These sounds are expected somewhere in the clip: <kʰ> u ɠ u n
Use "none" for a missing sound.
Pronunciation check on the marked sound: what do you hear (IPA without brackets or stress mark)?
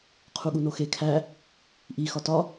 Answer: qʰ